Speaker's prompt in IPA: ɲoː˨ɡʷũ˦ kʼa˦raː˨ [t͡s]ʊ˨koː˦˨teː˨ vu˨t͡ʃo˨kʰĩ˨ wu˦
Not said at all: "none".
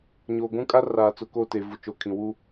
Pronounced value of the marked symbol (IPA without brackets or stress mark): t͡s